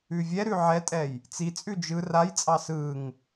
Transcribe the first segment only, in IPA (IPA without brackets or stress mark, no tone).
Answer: ʉ